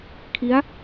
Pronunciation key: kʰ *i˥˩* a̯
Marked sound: incorrect: i˦˥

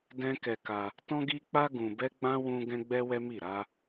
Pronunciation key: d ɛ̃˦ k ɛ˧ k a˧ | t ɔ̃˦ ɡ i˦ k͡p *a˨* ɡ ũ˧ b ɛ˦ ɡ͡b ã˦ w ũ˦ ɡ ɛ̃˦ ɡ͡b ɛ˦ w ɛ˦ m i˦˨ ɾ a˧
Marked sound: incorrect: a˦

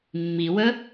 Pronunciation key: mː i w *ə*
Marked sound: correct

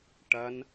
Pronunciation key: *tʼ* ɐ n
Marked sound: incorrect: ʈ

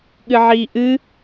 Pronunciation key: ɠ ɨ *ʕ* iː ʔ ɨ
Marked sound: correct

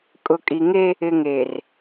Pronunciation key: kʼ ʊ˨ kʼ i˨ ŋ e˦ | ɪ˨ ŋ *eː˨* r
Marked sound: correct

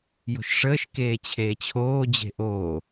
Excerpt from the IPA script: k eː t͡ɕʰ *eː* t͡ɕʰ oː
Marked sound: correct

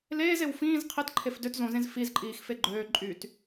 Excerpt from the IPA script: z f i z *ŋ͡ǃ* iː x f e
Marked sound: incorrect: ǃʼ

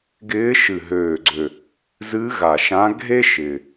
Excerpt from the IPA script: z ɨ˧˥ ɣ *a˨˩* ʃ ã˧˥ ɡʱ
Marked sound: correct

